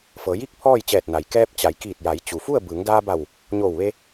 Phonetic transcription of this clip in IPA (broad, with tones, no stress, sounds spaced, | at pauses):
f ɤː˩˧ j i˥˨ k̚ pʰ ɔː˥˨ j t͡ɕ ɛː˧˩ t̚ n a˩ j k ɛː˧ p̚ t͡ɕ a˩˧ j k iː˧˩ t̚ j a˩˧ j t͡ɕ u˩ f u˥˨ ə̯ b ɯː˩˧ ŋ d aː˧ b a˧˩ w | ɲ oː˧˩ w ʋ e˧